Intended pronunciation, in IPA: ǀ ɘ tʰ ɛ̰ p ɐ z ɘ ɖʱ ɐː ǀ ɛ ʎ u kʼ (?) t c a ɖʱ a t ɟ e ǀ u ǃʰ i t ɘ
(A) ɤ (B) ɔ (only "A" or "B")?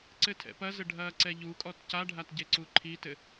B